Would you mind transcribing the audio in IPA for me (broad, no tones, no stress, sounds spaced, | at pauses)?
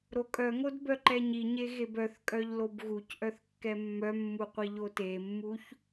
ɾ o kʼ œ ŋ o d b œ ǃ ɛ ɲ i ɲ e ɣ e b œ θ kʼ œ ʎ l o b ɣ u c ʔ œ θ kː ɛ mː œ mː u qʷ i ʎ o t e mː u ç